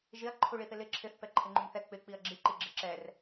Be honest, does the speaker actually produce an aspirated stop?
yes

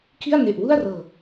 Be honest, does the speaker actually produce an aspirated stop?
yes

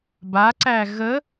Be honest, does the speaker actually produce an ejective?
no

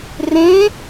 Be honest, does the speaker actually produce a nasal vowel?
yes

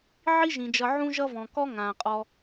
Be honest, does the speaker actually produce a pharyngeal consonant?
yes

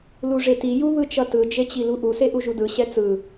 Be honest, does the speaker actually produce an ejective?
no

